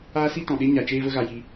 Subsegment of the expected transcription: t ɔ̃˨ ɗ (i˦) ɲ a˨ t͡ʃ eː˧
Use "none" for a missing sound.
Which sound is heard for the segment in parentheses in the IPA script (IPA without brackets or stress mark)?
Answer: e˦